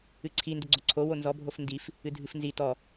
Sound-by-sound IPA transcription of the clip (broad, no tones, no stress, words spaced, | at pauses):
ɨǀʰindʏɡ͡ǀo ǀʰo wonzɔbʱof ndif | ɨdʱɨfnzi tɔ